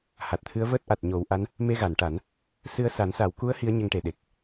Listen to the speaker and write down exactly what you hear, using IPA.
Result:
ha˨˩t̚t̪ʰɨ˧˥ə̯vəː˦˥t̚ ʔa˨˩t̚ɲo˨˩˦wʔa˧˥n | me˧ɣa˨˩˨nʈa˨˩˦n | sɨ˧ə̯sa˨˩˦n sa˨˩˦wku˧˥ə̯ hi˧˥ə̯ɲə˧ŋʈe˨˩ ɗe˨˩k̚

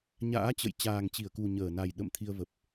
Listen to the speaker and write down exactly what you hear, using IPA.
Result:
ɲa̰ː˧˥t͡ɕə̰˧˨j t͡ɕaː˨˩ŋt͡ɕi˧˩ə̯ku˨˩ ɲəː˧˩na˨˩j ɗə̰˧˨m t̪ʰi˧ə̯ və˨˩p̚

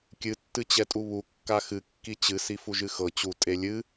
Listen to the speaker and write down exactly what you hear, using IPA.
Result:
kʲɨ tːɨt͡ɕɛtʼuβu kːaxɨ kːit͡ɕɨ sifuʒɨxɤ t͡ɕu tʼelʲɨ

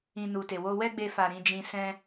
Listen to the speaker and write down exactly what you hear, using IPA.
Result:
ĩ˧nu˨te˨ wo˧wɛ˦ɡ͡be˧fa˨ ɾĩ˧d͡ʒĩ˧sɛ̃˦

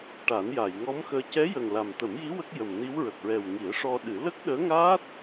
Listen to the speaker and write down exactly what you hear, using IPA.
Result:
ʈa˨˩˦nja˨˩˨jŋɔ˧˥mxəː˧ cɛ˧˥jə˨˩ŋ la˨˩m t̪ə˨˩˦mji˧˥ wə˦˥k̚jə˨˩mni˧˥w ɹə˨˩k̚ɹɛ˨˩wŋi˨˩˦ə̯ ʂɔ˧ɗɨ˨˩˦ lə˦˥k̚ɗəː˧˥ŋaː˦˥t̚

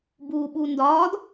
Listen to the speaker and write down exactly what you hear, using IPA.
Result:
buːɓundɒːd

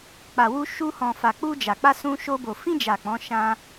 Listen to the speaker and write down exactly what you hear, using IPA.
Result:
k͡pa˨wu˧ ʃu˧hɔ̃˨fa˨ k͡pu˧d͡ʒa˨k͡pa˧ sũ˧ʃo˧ bo˨fĩ˧d͡ʒa˨ k͡pɔ̃˨˦ʃã˧

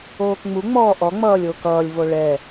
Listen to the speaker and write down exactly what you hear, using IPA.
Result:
oːkŋ͡mu ŋ͡mɔːʔɔ ŋ͡mʌːlʲokʌːlʲ voɭɛ

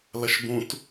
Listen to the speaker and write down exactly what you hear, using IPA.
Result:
lɐʃbũt

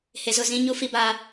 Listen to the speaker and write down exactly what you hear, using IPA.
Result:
he˨zʊ˦˨ zĩ˦ ɲu˦fi˦baː˦

